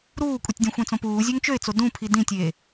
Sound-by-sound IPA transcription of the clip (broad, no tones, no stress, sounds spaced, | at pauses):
ɾ uː kʷʼ i tʲ dʲ ũ xʷ ẽ t͡s õ p uː zʲ ø ŋ t͡ʃ ø ɪ̯ t͡s o d ũ pʰ i d ĩ tʲ eː